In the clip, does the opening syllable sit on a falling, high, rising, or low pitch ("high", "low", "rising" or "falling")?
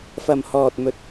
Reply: low